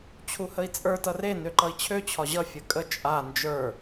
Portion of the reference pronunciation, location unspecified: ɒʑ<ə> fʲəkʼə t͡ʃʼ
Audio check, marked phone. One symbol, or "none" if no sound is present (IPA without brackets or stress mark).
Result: ʌ